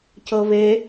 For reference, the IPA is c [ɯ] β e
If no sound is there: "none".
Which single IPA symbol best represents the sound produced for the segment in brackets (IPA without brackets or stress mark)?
ɤ